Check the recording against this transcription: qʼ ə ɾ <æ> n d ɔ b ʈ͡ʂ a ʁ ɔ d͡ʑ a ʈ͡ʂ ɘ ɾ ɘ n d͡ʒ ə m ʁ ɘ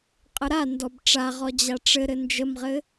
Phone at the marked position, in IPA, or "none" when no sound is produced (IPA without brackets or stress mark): a